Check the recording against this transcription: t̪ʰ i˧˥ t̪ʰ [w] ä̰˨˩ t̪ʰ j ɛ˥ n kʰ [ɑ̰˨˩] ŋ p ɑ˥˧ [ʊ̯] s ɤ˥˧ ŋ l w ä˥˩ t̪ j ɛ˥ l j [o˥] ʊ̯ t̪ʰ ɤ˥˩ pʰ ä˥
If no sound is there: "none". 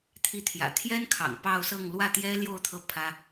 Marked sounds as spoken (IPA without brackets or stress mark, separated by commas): j, ɑ̰˨˩, ʊ̯, o˥˧